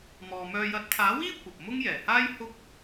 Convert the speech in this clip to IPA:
m ɔː˨ m œː˧ j ɐ˨˥ t̚ t̪ʰ aː˨˥ w iː˥ kʷ ɐ˨ p̚ m ʊ˥ ŋ j ɛː˨˩ h aː˥ j h ʊ˥ k̚

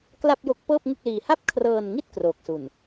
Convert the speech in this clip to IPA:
k l a˥˩ p̚ j o˦˥ k̚ p ɤː˥˩ p̚ ŋ ɯ˥˩ k̚ l iː˧ h a˥˩ p̚ kʰ r ɤː˧ n ŋ i˥˩ t̚ k r oː˨˩ k̚ s u˨˩ n

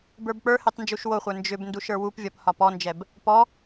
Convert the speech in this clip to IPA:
b ə˞ b k͡p ə˞ h e tˤ n d͡ʒ u ʃ w o χʷ ə˞ n d͡ʒ ʏ b n d u ʃ ə˞ w u p vʲ ɒ p h ɒ p ɔ n d͡ʒ ɛ b | p ɔ

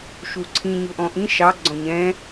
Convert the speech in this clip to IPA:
ʃ u ǀʰ ĩ ɲ ʊ ʔ ɔ̃ ʔ ĩ ʃ ɑ ɡ͡ǀ ɔ̃ ɲ ɛ̃

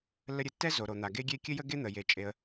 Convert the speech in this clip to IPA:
lː ə˥ ɾʲ ɘ˩ tː ɛ˥ z o˩ ɾ o˩ n̪ a˩ ɡ e˥ ɡʲ e˥ kʲ ɘ˥ j ə˥ ɡ e˥ n̪ ə˩ j e˩ t͡ʃʼ e˩ ə̯

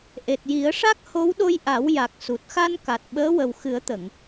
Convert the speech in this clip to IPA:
ʔ e˨˩ t̚ j i˨˩˦ ə̯ ʂ a˦˥ k̚ h o˧˥ w ɗ o˧ j ʔ a˨˩˦ w j a˨˩ k̚ s u˨˩ t̚ x a˧ n k a˨˩ t̚ ɓ əː˧˥ w ə˨˩ w x ɨ˨˩˦ ə̯ t̪ ə˨˩˨ ŋ

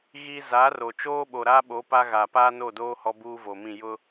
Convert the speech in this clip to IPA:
ɣ i˦ z a˨˦ r o˨ t͡ʃ oː˦ ɓ o˨ ɾ aː˦ ɓ o˨˦ p a˦ ɣ aː˨ p aː˦ n o˦˨ d oː˦ h ɔ˦ b uː˦ v o˨ m ĩ˦˨ j ʊ˦

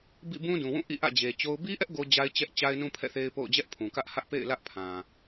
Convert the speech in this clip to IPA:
b ḭ˦˨ b ũ˦ d ũ˨ w ũ˦˨ ʔ ḭ˦˨ ʔ ä̰˦˨ d͡ʑ e˨ t͡ɕ o˦ ʊ̯ b i˦ ʔ ɛ˦ ʔ ɡ o˦ d͡ʑ a˦ ɪ̯ t͡ɕ ɛ˦ ʔ t͡ɕ a˦ ɪ̯ n ũ˦ pʰ ɛ̰˦˨ θ e˦ ɪ̯ p o̰˦˨ ʊ̯ d͡ʑ ɛ˦ ʔ pʰ ũ˨ k ä˦ ʔ h ä˦ ʔ p ḛ˦˨ ɪ̯ l ä˦ ʔ pʰ ã˨

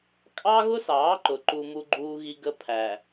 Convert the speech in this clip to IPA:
kʼ ɑ˦ ɣ ʊ˦ s ɑː˨˦ ǃ ʊ˨ ǃ u˦ m u˦ ɡ͡ǃ uː˦ ɣ i˦ ɡ ə˦ pʰ æ˨

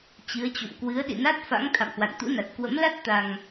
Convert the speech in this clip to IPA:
t͡ɕ ɨ˨˦ ə̯ t͡ɕ o̰˧˨ m k w ɨ˨˦ ə̯ ɗ ḭ˧˨ n a˦˥ t̚ f a̰˧˥ ŋ t̪ʰ a̰˧˨ m h w a̰˧˨ n t̪ ṵ˧˥ n a˨˩ t̚ k w ə̰˧˥ m l a˦˥ t̚ t̪ a˧ ŋ

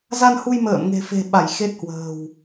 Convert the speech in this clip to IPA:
z a˧ n h u˧ j m ə̰ː˧˨ m ŋ e̤˨˩ f e̤˨˩ ɓ a˧˩ j x e˦˥ t̚ h w ə̤ː˨˩ w

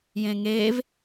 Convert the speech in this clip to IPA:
j ẽ ŋ eː v

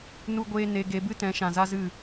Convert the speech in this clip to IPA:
n u˦ ɡʷ eː˦ n e˧ ɡ e˧ b ɨ˦ t ɛ̃˨˦ ʃ ã˨ z a˦ z ɨ˦˨

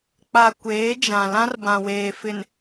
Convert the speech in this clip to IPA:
k͡p a˨ kʷ eː˨˦ d͡ʒ ã˨ l ã˦ r b ã˨ w eː˨ f ɪ˨ n

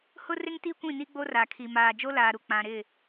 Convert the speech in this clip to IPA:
h ʊ˦ r ɪ˦ ŋ t i˦ kʷ ĩ˦˨ n i˦ ɡ͡b o˦ r a˨ kʰ i˨ m aː˨ d͡ʒ o˦ l aː˨ ɾ u˨ k͡p ã˨ ɾ ɪ˦˨

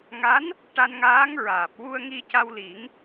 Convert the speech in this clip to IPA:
ŋ a˧˥ n | ʈ a˧ n ŋ aː˧˥ ŋ ɹ aː˨˩ p̚ w u˧ ə̯ ŋ i˧ c a˧ w l i˨˩˦ ŋ

